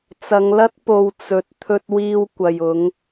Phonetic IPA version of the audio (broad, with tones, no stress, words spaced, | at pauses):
t͡sɐ˨˧ŋlɐ˥t̚ po˨˧w t͡sɵ˨t̚ t̪ʰɵ˧t̚wiː˧w kʷɐ˨j ʊ˨˧ŋ